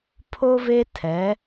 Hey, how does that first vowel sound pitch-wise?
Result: high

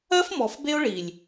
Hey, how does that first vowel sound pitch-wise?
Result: high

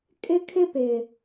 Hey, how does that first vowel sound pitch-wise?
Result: high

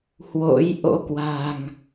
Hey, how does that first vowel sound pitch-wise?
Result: rising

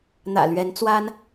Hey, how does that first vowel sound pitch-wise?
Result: low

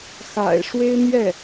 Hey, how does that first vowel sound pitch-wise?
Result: low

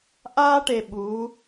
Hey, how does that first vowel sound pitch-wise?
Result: high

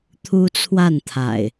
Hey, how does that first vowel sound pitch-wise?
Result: high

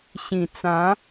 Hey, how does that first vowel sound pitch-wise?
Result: low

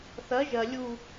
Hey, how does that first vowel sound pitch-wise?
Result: rising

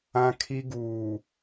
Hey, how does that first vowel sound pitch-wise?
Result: high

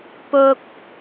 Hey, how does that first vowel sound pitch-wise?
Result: low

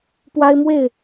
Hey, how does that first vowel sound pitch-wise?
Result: high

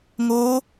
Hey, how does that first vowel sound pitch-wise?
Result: rising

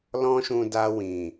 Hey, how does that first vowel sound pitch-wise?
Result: high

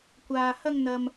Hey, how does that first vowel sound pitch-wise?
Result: low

